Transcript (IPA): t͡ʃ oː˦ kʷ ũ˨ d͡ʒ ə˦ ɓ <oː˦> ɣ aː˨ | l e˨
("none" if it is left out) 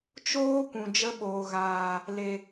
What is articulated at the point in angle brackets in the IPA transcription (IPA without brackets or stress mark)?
oː˨